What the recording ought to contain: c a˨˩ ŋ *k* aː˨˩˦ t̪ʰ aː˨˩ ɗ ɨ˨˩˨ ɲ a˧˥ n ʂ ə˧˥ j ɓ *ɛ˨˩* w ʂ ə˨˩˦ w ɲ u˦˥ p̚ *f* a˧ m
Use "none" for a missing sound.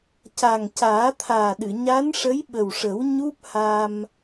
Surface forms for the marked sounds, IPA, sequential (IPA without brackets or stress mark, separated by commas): c, ə˨˩, h